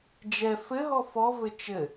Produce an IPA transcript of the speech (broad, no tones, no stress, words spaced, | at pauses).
d͡ʒɛ fɘɦɔ fɔvɘ t͡ʃɘ